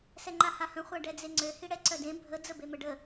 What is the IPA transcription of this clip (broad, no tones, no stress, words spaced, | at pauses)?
sɛŋ͡ǃahahə̃ χʷaɖɛd͡zeŋ͡ǀø hiɽɛǀœdẽ bʱə d͡zəbeməɖə